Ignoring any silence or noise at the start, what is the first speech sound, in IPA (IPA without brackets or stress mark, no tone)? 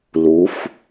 l